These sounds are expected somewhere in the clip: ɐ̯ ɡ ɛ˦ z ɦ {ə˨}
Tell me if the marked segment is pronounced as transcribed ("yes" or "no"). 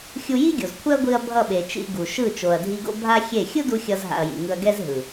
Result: no